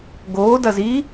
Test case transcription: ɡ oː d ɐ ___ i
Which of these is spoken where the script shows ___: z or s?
z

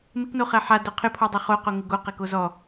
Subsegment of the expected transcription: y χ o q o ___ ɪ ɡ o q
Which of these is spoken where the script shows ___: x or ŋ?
ŋ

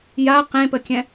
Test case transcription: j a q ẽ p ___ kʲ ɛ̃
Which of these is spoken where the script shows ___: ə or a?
ə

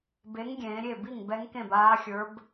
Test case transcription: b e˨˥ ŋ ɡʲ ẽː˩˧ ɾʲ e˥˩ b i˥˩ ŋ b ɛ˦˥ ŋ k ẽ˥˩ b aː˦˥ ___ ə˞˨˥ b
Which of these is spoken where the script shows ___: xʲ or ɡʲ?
xʲ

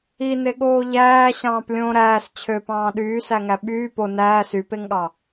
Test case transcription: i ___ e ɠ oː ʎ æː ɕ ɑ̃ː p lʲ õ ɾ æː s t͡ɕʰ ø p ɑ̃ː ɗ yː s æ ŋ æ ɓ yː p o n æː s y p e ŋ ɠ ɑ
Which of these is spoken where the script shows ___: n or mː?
n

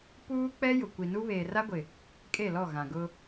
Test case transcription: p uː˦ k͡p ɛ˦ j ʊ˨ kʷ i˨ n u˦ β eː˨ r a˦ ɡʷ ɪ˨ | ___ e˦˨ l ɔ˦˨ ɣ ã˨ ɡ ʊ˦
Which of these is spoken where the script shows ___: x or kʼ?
kʼ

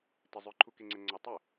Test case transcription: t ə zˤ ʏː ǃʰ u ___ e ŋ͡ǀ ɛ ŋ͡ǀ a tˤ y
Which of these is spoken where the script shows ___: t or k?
k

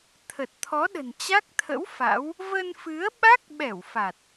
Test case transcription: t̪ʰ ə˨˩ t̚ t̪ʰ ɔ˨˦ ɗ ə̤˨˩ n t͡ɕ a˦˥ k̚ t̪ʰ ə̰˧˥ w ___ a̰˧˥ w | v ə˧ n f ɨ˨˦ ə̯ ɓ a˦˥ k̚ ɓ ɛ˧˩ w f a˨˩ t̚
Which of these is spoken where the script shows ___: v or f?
f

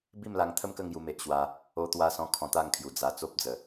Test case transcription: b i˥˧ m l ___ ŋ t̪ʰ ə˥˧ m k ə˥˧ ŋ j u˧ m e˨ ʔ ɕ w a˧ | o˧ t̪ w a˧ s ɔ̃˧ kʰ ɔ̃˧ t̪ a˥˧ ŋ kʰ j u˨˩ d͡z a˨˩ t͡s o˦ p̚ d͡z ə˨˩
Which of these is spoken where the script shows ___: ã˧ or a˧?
a˧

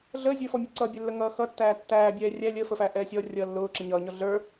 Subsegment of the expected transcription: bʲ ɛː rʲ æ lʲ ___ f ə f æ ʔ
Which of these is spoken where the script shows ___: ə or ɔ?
ə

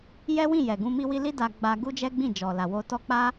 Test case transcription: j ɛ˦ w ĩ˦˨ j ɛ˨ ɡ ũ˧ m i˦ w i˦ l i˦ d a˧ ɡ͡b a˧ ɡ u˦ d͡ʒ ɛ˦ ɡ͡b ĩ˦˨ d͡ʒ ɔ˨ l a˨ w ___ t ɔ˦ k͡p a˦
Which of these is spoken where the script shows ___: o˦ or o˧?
o˧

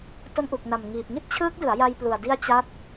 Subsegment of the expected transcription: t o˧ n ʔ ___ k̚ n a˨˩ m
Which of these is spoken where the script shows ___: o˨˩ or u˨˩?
u˨˩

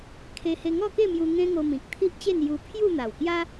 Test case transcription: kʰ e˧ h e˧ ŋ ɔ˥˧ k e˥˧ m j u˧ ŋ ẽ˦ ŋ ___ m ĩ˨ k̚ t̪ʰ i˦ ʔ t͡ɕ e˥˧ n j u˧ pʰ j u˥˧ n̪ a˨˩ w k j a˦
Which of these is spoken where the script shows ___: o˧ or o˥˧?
o˧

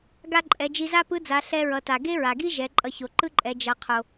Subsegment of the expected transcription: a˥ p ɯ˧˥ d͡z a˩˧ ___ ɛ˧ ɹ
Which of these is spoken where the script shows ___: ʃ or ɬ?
ɬ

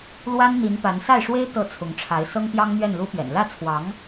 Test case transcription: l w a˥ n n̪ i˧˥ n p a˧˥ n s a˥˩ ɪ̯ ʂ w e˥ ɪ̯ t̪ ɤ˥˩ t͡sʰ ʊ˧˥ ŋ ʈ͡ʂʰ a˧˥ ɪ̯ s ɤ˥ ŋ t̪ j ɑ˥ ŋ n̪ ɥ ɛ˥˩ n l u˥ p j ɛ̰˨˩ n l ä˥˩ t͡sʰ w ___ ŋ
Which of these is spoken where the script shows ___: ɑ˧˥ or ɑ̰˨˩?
ɑ˧˥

